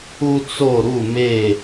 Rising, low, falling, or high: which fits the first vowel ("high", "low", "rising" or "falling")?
high